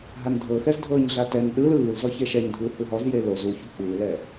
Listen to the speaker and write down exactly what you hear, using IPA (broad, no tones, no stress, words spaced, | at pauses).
ɦandʱɤxɛzdʱɤːɲ ɮatɛn ɗɯl ɯːl zɔçeʃɛɲdʱɯː hɯɦɔzje lo zuçu k͡pɯːlɛ